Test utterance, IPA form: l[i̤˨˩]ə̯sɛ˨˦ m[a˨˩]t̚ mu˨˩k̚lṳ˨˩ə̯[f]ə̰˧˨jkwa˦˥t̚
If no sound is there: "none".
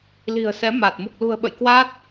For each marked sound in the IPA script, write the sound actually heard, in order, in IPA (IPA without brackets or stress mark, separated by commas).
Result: i̤˨˩, a˨˩, ɓ